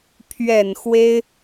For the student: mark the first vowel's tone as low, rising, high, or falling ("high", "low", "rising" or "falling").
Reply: low